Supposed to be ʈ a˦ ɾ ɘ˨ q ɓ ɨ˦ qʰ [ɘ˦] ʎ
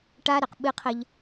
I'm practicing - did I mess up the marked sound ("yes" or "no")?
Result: no